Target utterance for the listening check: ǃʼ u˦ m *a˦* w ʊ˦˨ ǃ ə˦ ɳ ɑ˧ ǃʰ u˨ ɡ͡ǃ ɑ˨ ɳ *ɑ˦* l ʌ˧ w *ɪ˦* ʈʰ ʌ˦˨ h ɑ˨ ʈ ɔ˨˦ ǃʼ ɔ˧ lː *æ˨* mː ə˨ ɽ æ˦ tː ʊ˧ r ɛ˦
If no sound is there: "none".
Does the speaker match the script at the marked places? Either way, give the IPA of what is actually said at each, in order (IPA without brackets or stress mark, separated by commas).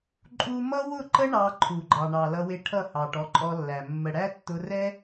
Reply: ʌ˦, ɑ˨, ɪ˧, æ˨